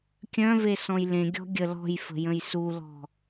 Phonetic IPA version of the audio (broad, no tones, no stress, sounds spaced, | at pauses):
kʲ œ̃ v e s ɔ̃ j l ẽ ɡʲ ɔ̤ ɡʲ ə l ɔ̤ j f ə̤ j ə̃ j s u l ɔ̤